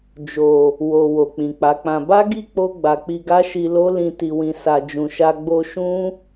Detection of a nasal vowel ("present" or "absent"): present